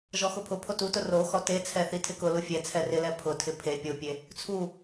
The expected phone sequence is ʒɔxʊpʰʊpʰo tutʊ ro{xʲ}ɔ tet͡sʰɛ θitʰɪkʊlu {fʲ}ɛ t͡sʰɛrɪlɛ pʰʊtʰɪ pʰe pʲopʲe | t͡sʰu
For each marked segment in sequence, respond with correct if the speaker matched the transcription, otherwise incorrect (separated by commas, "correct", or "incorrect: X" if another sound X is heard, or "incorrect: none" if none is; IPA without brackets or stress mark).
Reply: incorrect: x, correct